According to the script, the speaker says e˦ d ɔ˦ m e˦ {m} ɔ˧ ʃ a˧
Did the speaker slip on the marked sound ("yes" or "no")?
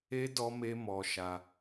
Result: no